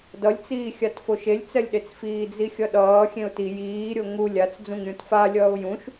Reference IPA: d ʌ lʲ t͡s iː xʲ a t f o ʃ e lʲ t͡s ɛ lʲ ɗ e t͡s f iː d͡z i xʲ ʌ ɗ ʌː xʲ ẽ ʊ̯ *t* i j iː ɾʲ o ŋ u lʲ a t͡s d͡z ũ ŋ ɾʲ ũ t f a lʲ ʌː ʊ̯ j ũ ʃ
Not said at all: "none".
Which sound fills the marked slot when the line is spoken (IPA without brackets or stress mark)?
t